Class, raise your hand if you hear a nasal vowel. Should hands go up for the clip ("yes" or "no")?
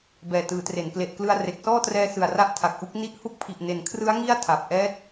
no